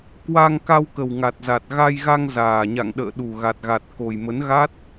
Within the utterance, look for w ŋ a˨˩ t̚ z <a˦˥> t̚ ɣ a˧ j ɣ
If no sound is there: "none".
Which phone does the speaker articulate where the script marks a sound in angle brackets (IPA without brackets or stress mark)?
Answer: a˨˩